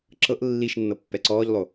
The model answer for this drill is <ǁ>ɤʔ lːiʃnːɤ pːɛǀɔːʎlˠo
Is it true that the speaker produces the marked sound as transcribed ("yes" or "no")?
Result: yes